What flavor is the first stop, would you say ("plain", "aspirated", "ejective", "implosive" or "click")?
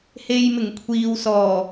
aspirated